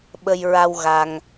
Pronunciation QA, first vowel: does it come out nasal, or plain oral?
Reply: oral